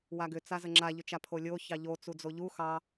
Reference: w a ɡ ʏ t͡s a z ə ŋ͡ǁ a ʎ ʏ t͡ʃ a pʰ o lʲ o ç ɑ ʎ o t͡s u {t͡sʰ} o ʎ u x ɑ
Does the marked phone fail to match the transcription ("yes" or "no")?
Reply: yes